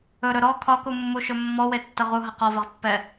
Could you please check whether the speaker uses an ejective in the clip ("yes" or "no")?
no